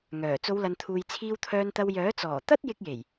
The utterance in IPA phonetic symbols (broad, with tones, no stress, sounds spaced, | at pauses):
ŋ œː˨˩ t͡s o˨˧ w l ɐ˨ n t̪ʰ uː˨ j t͡sʰ iː˧ w t̪ʰ œː˧ n t̪ ɐ˧ w j œː˨˥ t͡s ɔː˨˩ t̪ ɐ˥ t̚ j ɪ˧ k̚ j e˨˩ j